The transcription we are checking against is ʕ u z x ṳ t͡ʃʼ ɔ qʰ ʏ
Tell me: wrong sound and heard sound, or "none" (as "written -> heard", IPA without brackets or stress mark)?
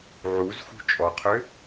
none